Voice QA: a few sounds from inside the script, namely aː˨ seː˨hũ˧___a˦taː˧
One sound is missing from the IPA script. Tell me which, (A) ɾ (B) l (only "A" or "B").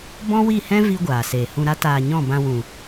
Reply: A